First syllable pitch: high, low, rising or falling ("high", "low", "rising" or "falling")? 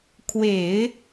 low